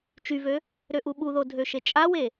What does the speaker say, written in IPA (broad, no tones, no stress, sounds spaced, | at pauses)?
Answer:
t͡ʃ y v ø | ɾ ø ʔ u ɓ u ð o dʱ ø ʃ e t͡ʃʼ a w e